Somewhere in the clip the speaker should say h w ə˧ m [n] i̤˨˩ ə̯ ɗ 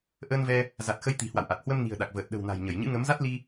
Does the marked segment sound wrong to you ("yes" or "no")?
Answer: no